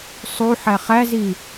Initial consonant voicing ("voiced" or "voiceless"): voiceless